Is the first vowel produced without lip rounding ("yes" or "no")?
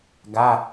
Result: yes